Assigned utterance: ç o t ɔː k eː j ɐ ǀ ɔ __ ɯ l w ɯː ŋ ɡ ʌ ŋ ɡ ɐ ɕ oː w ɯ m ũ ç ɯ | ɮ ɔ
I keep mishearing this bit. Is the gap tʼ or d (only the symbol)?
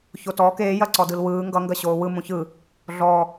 d